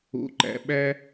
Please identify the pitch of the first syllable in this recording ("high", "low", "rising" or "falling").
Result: low